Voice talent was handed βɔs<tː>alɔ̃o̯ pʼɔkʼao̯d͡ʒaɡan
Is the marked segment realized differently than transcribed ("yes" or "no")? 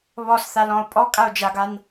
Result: yes